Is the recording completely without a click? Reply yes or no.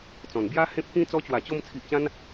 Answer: yes